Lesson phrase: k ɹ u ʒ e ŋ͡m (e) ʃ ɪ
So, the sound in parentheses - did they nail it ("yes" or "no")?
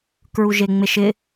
yes